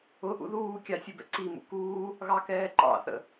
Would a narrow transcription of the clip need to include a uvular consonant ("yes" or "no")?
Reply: no